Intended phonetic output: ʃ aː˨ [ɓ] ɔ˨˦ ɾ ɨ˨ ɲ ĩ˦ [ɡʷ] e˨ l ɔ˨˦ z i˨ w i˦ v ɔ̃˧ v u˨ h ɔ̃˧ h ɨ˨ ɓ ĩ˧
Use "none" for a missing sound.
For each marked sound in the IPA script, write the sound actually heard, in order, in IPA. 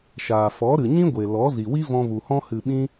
f, ɡʷ

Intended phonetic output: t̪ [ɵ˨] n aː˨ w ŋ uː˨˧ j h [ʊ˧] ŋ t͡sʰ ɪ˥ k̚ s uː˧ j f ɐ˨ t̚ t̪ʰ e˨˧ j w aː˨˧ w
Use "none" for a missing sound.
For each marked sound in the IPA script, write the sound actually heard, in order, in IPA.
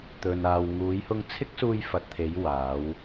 ɵ˨, ʊ˧

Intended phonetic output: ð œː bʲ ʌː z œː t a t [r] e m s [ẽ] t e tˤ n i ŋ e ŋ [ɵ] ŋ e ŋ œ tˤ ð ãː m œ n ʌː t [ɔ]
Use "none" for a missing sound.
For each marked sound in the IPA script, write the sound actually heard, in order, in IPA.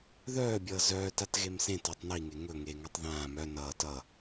ɣ, ẽ, ɵ, ʌ

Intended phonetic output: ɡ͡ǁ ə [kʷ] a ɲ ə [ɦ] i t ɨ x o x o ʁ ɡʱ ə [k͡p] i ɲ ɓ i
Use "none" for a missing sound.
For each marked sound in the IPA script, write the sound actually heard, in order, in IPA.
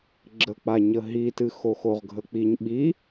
k͡p, ɦ, k͡p

